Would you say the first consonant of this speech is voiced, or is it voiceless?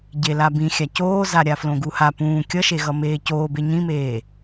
voiced